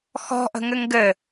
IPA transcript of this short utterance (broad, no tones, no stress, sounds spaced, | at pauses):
x ɔ̤ ʔ ə̤ ŋ ɘ ŋ ɡ ɘ